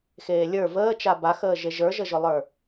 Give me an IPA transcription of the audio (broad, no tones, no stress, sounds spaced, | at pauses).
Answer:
x eː lʲ ə˞ v əː t͡ʃ a b a x əː ʒ e ʒ ə˞ ʒ ə ʒ ʊ lˠ ə˞